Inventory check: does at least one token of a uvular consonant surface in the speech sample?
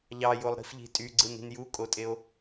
no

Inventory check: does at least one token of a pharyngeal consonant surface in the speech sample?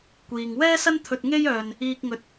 no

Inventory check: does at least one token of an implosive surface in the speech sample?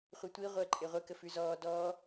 no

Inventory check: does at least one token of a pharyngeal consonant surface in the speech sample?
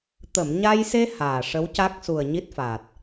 no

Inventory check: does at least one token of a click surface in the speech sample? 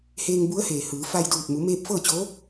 no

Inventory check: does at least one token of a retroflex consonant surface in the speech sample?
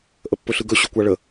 yes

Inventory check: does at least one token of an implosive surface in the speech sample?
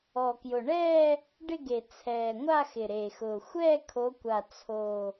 no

